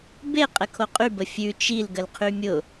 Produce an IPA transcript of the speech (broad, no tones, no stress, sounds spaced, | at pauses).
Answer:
b e qʼ ə kʰ o qʼ y b ə fʲ ʉ t͡ʃ i l ɡ ə l qʰ y mʲ ʊ